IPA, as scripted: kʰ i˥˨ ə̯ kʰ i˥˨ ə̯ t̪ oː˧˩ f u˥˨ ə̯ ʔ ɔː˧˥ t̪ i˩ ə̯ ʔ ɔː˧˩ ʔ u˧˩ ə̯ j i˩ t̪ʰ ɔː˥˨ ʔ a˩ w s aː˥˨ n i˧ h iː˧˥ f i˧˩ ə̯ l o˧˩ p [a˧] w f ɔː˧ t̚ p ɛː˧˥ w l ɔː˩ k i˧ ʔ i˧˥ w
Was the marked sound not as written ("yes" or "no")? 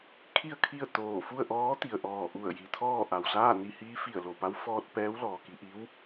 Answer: yes